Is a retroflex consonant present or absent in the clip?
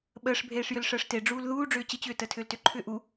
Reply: present